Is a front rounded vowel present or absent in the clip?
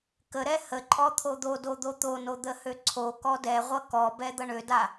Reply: present